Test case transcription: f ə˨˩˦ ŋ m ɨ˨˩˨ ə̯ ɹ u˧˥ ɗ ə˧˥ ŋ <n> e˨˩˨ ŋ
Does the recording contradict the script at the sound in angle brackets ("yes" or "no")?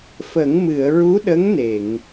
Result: no